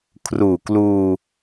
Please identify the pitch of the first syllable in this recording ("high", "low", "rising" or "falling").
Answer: low